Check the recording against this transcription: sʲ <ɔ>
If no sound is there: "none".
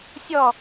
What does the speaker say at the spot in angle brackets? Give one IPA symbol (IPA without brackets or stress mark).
ɔ